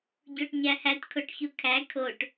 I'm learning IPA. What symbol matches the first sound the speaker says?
ɟ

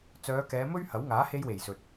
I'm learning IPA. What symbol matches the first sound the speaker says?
t͡s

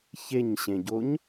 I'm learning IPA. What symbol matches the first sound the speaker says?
ç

